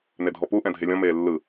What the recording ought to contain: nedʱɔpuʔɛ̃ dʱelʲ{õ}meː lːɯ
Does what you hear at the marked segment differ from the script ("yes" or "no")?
yes